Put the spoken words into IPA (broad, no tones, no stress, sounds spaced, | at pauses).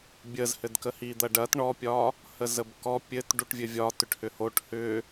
bʲ ə z h ɘ d k ə h i d̪ ɐ ɖ ɐ t ɳ ɔ pʲ ɒ | h ə z ə b k ɔ pʲ ɘ t ɖ u ʈ vʲ ɘ vʲ ɒ t ʏ ʈ h ʏ h o ʈ h ʏ